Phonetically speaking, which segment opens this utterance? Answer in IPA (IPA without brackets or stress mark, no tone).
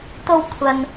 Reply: t̪